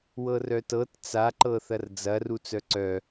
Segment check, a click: present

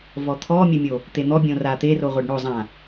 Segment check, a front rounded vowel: absent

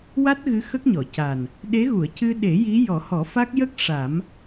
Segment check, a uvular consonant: absent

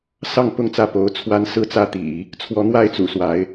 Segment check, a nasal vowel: absent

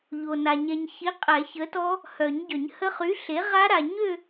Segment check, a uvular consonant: present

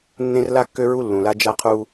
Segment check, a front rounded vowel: present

